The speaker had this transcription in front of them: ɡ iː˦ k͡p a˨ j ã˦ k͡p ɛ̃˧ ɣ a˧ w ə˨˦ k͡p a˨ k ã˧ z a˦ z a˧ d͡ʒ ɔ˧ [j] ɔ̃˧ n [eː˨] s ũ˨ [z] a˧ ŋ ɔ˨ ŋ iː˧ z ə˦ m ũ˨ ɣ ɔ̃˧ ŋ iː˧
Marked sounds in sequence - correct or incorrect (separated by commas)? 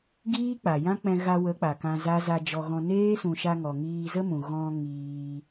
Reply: incorrect, incorrect, incorrect